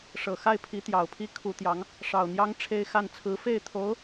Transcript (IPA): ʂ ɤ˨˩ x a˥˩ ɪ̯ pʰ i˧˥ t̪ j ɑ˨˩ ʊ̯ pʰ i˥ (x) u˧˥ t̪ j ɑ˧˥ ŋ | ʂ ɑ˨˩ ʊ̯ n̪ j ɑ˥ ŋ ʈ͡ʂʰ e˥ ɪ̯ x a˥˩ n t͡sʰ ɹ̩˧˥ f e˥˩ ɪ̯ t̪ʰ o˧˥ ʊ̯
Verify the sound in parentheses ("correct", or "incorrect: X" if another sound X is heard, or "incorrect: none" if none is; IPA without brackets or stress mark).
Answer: incorrect: kʰ